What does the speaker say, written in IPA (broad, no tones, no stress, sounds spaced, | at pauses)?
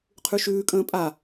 qʰ ʉ ʃ ʉː kʼ ə̃ː pʼ a